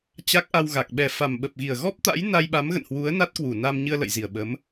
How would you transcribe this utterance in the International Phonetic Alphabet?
t͡ɕ a˦˥ k̚ ʔ a˧ w ɣ a˨˩ k̚ ɓ ɛ˧˩ f a˧˩ m ɓ ə˨˩ p̚ ɣ i˧˩ ə̯ ɣ ɔ˦˥ p̚ t̪ a̰˧˥ j n a˧ j ɓ a˨˦ m ɣ ə̰˧˨ n h w u˨˦ ə̯ n a˦˥ t̚ k w u˧˩ n a˧ m ɲ ɨ˧ ə̯ l ə̰˧˨ j z i˧˩ ə̯ ɓ ə˨˦ m

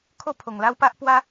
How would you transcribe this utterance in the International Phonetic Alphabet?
kʰ o˦ pʰ o˨˩ ŋ l a˦ w p a˦ ʔ p w a˦

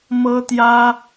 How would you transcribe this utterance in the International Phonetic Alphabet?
m ɤ˥ t̪ j ä˥

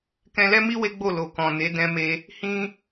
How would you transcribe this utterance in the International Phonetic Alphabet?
k ɛ̃˧ l ɛ˦ m i˦ w e˦ ɡ͡b o˦˨ l o˨ k ɔ̃˨ n e˨˦ d ɛ̃˧ m e˧ | h ĩ˦

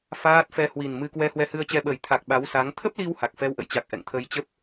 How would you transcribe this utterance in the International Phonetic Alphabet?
f aː˦˥ t̚ f ɛ˧ h w i˨˩ n m ɨ˧ k w ɛ˧ h w ɛ˧ h ɨ˧ ə̯ t͡ɕ ɛ˧ ɓ ə˨˩ j t̪ʰ a˨˩ k̚ ɓ a˨˦ w s a˨˦ ŋ t̪ʰ ə˦˥ p̚ l i˧ w h a˨˩ k̚ f ɛ˧ w ʔ ə̰˧˨ j t͡ɕ a˨˩ k̚ ʔ ɛ̰˧˨ ŋ t̪ʰ ə˧ j t͡ɕ ə˦˥ p̚

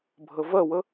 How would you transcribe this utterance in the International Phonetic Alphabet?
bʱ ə v ɜ w ə

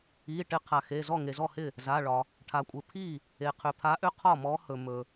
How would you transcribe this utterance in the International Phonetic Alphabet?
i˩˧˩ ʈ ɪ˨˦ qʰ a˩ x e˩˧˩ z ɔ˥˩ ŋ e˩ z ɔ˥˩ h ɪ˥˩ | z a˩˧˩ ɭ ɒ˩ | ʈʰ a˩ kʷʼ ɪ˩ pʰ i˥˩ | e˩ qʰ ʏ˩ pʰ a˨˦ ʔ ʏ˥˩ qʰ ɒ˥˩ m ɔ˨˦ h ɵ˩ m ɵ˩

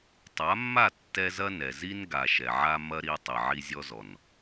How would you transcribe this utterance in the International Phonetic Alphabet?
tˤ a˨˦ mː a˦˨ tː ɛ˧ z ɐ˦ n ɛ˨ z i˦ n ɡ a˨ ʃ ɛ˨ ʕ a˧ m ɐ˦ ɾ i˧ tˤ i˨ ʕ i˧ zʲ ɔ˧ z ɔ˨ n

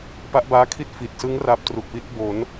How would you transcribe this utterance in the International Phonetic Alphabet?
p a˦˥ ʔ b aː˦˥ kʰ i˥˩ t̚ f i˨˩ t̚ s ɯ˦˥ ŋ r a˦˥ p̚ t r u˨˩ k̚ w i˥˩ t̚ b o˩˦ n

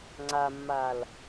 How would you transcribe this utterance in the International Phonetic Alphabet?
ŋ͡ǀ a mː a l

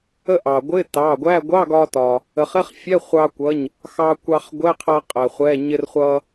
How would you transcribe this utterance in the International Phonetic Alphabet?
ə˧ ʔ ɑ˩ ɡʷ ɪ˧˥˧ t ɑ˩˧˩ ɡʷ æ˧˥˧ ɡʷ ɑ˧˥˧ ɡ ɒ˧ t ɒ˩ | ə˩ χ ɪ˧˥˧ χ fʲ ɛ˧˥˧ χʷ ɑ˧ kʷ ʌ˩˧˩ ɲ | x ɑ˧ kʷ ɑ˧ χ ɡʷ ɛ˧˥˧ qʰ ʌ˧ qʼ æ˩ χʷ ɛ˩˧˩ ɲ ɪ˧ r χʷ ʌ˧

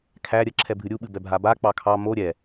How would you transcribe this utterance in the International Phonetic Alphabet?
kʰ æ ɾʲ ə ǁʰ ɛ bʱ ɨ ɾʲ u ɓ ɨ b ɛ bʱ a b a k͡p ɑ kʰ ɑ m o ɾʲ ɛ

